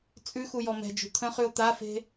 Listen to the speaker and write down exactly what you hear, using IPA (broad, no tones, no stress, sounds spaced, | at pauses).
t͡sʼ ʉ x u j ɔ m ɛ̤ d͡ʒ ṳ t̪ʰ ə̃ χ ʉ o̯ t̪ a f e̤